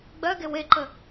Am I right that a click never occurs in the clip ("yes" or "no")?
no